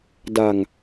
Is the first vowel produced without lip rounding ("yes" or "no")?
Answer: yes